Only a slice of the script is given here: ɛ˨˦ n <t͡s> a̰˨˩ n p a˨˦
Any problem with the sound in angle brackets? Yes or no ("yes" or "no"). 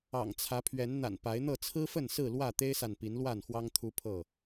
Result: yes